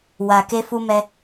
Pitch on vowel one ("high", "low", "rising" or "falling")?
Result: low